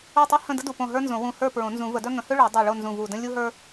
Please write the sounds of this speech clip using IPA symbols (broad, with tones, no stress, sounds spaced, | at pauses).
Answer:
o˥˨ tˤ u˥ h ə̃˥˨ d ə˥ d u˥˨ p õ˥˨ ɦ ə˞˥ n z õ˨˩˦ w ũ˧˩ h ə˞˥˨ p ɹ õ˨˩˦ n z ũ˨˩˦ v ə˨˩˦ d œ˥ ŋ ə̃˨˩˦ h ø˥ ɭ ø˨˩˦ dˤ ø˧˩ ɭ o˥˨ n z ũ˧˩ v u˧˩ d ə̃˥ lʲ u˥ ɦ ə˞˥